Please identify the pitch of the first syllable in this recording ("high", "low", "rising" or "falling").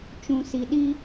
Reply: low